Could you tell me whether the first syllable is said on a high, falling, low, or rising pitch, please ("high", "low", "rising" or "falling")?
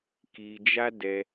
low